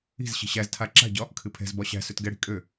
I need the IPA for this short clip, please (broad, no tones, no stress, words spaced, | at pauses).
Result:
i̤z ɕi̤ɕæztʰa ǁa̤ɟɒ | kʰɨpʰɛ̤zbɒ ɕæ̤ søtɡɛɽi̤ kʼø